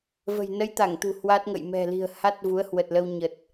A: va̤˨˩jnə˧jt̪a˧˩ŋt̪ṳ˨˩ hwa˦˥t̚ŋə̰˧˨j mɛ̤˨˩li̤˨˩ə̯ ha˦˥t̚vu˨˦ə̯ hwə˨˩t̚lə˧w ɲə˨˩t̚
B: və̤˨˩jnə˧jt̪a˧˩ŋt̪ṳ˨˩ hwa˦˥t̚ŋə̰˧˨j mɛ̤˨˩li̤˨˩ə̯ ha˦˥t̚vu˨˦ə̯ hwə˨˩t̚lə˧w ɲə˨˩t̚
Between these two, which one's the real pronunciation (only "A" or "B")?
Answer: B